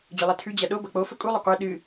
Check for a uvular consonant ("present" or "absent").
present